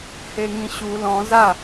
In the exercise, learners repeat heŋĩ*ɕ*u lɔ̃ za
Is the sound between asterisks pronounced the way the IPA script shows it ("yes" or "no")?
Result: yes